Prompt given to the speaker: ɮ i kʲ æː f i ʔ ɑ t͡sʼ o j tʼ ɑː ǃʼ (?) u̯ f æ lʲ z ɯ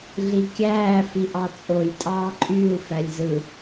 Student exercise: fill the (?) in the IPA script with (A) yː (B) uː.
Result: A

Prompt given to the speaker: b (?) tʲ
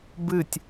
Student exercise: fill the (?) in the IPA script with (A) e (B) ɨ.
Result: B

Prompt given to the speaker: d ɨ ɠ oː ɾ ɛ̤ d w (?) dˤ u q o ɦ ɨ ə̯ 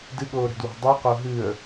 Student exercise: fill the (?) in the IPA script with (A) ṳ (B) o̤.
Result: B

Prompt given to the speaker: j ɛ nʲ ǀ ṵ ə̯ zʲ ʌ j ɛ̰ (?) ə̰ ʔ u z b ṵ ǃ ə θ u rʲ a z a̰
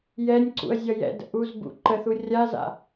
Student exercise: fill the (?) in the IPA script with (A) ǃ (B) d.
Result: B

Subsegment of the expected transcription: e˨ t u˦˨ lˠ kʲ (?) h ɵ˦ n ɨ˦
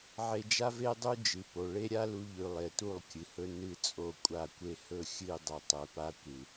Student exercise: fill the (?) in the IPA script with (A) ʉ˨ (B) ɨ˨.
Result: B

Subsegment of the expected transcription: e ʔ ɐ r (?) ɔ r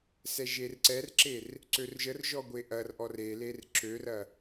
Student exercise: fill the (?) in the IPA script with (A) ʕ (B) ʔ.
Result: B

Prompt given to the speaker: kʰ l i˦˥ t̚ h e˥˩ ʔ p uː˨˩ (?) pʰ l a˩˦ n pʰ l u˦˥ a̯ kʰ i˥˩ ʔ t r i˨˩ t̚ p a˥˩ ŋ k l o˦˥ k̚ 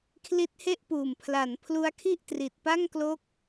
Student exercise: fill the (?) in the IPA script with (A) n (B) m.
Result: B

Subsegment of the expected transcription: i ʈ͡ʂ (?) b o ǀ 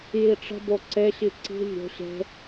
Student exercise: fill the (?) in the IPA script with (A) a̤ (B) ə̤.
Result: B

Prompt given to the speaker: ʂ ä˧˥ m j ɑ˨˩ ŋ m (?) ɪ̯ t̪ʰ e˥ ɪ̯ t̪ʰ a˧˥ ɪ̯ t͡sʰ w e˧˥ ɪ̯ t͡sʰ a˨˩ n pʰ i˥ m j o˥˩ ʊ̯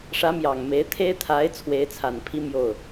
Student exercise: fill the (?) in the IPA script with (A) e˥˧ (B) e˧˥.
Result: B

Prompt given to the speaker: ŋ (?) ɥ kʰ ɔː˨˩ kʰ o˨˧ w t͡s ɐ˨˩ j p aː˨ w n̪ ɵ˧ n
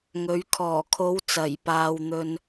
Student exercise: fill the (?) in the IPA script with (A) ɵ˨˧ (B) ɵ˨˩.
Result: A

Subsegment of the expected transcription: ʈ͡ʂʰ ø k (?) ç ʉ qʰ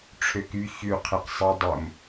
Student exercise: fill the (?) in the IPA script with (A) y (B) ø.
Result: A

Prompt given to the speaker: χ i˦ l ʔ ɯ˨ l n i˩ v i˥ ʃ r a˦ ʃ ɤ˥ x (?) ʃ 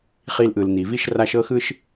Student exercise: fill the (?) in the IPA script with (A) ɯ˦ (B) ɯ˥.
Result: B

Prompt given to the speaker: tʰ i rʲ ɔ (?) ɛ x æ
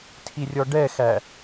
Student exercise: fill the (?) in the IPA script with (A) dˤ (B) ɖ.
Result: B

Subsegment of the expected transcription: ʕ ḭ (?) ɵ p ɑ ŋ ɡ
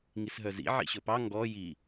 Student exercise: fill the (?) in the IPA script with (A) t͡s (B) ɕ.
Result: B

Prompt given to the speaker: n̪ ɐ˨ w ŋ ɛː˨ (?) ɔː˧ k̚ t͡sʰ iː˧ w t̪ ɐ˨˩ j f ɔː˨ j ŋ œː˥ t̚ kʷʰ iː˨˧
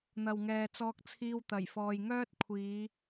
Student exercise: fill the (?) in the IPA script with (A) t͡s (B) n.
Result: A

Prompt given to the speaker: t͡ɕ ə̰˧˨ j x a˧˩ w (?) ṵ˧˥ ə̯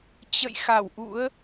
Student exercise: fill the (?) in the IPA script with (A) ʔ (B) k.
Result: A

